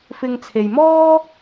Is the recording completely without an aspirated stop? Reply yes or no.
no